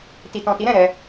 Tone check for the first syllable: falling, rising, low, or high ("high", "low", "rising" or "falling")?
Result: low